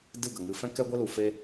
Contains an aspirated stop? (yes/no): no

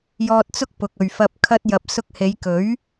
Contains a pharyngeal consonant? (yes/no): no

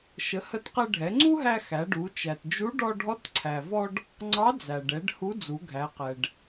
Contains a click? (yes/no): yes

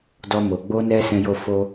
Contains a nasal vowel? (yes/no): yes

